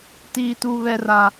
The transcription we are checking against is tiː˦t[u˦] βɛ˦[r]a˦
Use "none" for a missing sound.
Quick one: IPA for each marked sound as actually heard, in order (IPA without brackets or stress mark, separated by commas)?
u˦, r